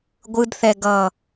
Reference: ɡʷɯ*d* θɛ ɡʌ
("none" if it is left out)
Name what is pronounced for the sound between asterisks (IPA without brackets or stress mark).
d